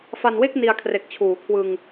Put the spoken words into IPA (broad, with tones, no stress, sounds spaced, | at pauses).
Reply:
f a˧ n w e˥˩ k̚ n i˧ a̯ kʰ r e˨˩ k̚ t͡ɕʰ uː˩˦ kʰ w ɯ˧ ŋ